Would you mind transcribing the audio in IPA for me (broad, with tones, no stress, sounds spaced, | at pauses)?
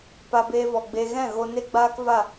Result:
p a˧ b eː˧ v ɔ˨ ɡ͡b e˧ ɣ ɛ̃˦˨ ɣ o˧ n e˦ ɡ͡b aː˦ k v a˦˨